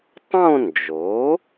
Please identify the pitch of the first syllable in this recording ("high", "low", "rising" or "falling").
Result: falling